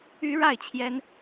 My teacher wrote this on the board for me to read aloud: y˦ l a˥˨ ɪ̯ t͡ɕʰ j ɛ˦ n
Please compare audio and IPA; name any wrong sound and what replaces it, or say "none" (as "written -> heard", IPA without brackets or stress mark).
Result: l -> ɻ